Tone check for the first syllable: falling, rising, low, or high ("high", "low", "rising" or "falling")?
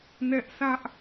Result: high